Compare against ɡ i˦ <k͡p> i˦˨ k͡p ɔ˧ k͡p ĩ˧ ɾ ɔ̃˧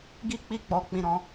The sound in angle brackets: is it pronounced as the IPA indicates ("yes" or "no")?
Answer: yes